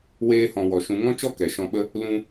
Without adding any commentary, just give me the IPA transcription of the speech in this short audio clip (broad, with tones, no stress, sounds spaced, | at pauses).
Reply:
w eː˧ h ɔ̃˨ w ɔ˨ ʃ ũ˨˦ ŋ ɔ̃˦ t͡ʃ ɔ˦ k ɛ˨ ʃ ɔ̃˧ ɓ ə˦ | l ũ˧